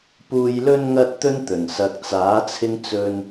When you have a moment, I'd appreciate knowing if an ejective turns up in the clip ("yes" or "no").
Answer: no